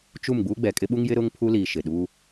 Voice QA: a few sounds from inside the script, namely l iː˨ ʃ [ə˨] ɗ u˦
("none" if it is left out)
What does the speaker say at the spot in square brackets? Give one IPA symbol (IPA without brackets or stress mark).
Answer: ɪ˨